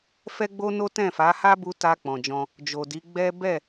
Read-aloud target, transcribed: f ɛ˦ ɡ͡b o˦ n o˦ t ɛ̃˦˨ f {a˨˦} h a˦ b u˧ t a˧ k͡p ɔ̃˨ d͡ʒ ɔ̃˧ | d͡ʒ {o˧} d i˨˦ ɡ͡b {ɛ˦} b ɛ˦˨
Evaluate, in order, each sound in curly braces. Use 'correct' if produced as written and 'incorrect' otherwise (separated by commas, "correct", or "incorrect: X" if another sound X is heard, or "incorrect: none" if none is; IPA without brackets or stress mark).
correct, incorrect: o˨, correct